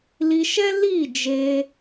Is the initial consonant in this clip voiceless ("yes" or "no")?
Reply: no